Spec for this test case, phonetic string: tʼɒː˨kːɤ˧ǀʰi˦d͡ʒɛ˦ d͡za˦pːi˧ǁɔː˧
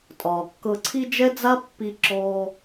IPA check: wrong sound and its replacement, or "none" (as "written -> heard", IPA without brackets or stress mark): none